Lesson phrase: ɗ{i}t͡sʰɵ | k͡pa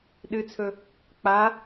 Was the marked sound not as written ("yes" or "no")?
yes